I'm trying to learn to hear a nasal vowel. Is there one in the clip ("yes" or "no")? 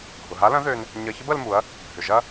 yes